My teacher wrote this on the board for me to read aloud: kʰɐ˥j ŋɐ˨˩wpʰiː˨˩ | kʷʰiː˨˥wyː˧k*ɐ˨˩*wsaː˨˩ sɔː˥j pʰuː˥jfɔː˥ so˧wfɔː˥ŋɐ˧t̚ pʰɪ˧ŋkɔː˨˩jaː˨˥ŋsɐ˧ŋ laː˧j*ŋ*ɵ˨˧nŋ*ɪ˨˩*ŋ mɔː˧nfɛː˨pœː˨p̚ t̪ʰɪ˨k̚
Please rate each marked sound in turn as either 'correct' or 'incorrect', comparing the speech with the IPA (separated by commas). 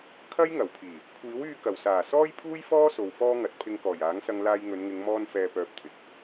correct, correct, incorrect